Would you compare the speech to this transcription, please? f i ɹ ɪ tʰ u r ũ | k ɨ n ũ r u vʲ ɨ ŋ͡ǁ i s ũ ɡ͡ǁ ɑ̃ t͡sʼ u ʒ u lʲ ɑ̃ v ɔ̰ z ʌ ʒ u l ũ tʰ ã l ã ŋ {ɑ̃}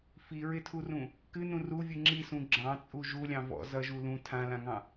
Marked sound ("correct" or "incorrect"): correct